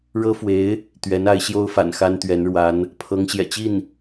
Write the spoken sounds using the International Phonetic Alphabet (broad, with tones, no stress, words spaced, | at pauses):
ɻɤ˥fwe˧˥ɪ̯ | t̪ɥɛ˧˥n a˧˥ɪ̯ɕjo˥ʊ̯fa̰˨˩n xa˥nt̪ɥɛ˧˥nɻwa˧˥n | pʰɤ˧˥ŋɕjɛ̰˨˩t͡ɕi˥˩n